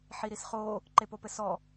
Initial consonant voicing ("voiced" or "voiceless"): voiceless